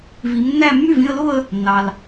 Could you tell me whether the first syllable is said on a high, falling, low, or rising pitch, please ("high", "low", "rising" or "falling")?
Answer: rising